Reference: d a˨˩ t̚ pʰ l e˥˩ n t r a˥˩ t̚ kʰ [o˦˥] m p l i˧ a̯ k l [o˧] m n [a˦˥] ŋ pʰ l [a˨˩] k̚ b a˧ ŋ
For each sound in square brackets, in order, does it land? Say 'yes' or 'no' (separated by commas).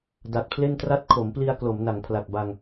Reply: no, no, no, yes